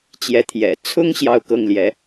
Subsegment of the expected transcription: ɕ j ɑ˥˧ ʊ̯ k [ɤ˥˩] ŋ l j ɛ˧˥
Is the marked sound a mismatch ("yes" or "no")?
no